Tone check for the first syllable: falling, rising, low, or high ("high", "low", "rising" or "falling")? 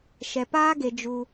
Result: low